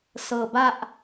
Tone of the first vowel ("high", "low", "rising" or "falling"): low